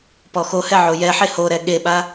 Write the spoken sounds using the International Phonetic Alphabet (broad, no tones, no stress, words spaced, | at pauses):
pɔxohɛ ʕojɛħe hoɾɛ ɠeɓa